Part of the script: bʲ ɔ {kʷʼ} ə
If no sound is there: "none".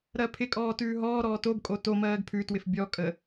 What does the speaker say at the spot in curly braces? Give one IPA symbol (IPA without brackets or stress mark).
kʼ